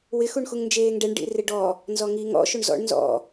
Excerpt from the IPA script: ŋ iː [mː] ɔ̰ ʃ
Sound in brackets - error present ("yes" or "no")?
yes